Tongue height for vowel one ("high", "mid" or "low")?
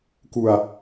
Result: high